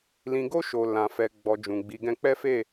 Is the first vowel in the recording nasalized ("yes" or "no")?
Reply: yes